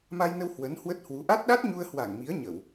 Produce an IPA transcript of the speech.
ma˧jnə˧w hwə˨˦nhwə˦˥t̚hwu˨˦ ʔa˦˥t̚ɗa˦˥t̚ɲu˧ə̯ hwa˧˩ŋmi˨˦ə̯ ɲə˧˩˨w

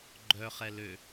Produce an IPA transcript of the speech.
ɡ͡ǃœχɛ lø

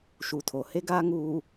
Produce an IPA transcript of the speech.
ʃu˨tʰo˨ he˦ɡaː˦ŋuː˨

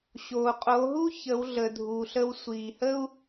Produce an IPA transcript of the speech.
ɕoː˩qʼo˩˧ɦu˥ çə˩˧w ɮə˩dʱuː˩ɬə˧w sʷiː˩hə˥u̯

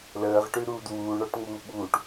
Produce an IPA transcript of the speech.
ləːʁʈʉɾuːd wuːɳɔʈ ŋ͡muːɓuːʈ

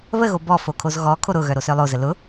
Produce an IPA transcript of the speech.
βəɣo bɔfo kʰozɣɔkʰo ɾʊɣœ ɾosœlˠozə lʊ

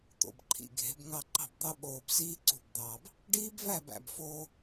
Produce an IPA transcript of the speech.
t̪o̰˨bǃʰḭ˨ɡʱe̤˨˦b ŋɑ˧ ǃɑ̤˦˨bd̪ɑ˦ɓoː˧bsiː˦ ǀṳ˦˨bd̪ɑː˧b | ɖiː˦bvæ˦˨bæ̰˨bfoː˧

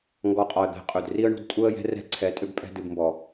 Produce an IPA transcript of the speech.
ŋɡɔ˨˦qʼɒ˨ə̯d̪ɛ̤˨˦ qʼɵ˨dri˦ə̯ɳṳ˧d tʼu˧ə̯jɛ̤˧ rɛ̤˦˨ǀʰɛ˨˦ tʼʏ˧bpʼɛ̤˧ dɨ˨b mbɔ˨

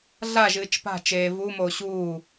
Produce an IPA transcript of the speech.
ɮa ʒɨːt͡ʃpa̤ t͡ʃeːvu moːɕuː

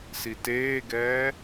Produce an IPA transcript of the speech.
siteːɡɛː

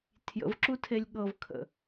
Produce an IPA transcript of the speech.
tʰjə̰vǁutʰelʲ ɠɤvkʰə̰

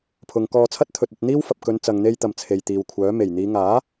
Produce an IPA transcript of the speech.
pʰʊ˨ŋkɔː˧t͡sʰɐ˥t̚ t̪ʰɵ˨t̚ɐ˧t̚n̪iː˥w fɐ˨p̚kɵ˨˧n t͡sɐ˨ŋn̪e˧jt̪ɐ˨m t͡sʰe˨jt̪iː˨wkʷʰœː˨˥ me˨˩jn̪iː˨˧ ŋaː˨˥

